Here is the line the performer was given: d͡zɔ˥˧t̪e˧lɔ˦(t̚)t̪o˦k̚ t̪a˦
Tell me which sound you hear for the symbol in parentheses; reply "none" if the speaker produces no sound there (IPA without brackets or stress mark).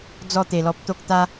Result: p̚